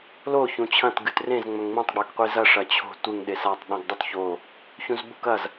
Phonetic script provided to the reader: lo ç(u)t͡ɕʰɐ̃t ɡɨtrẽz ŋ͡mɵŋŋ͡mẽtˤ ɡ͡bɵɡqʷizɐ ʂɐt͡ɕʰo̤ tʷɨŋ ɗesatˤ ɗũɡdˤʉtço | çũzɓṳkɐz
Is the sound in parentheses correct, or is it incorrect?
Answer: incorrect